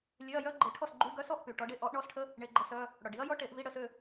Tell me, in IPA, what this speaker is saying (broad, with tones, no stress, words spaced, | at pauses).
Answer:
lʲø˧˥˧ɐ̯jœ˥ ɡ͡ǃe˨˦ʈʰɔ˥˨sɡ͡ǃy˧˥˧ɡœ˥s ɔ˧˥˧ʔ py˩ ʈɔ˨˦ɖe˥˨ʔ ɔ˥ʔ ɳɔ˧˥˧sʈʰə˥ | ɳe˧˥˧ɡ͡ǃə˥sœ˧˥˧ | ɽɔ˩ɖi˥ɐ̯ jɔ˥ʈe˨˩˦ʔvi˧˥˧ ɽə˥˨sø˥˨